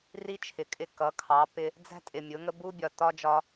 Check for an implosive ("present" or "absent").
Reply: absent